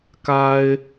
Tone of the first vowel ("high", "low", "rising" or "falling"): high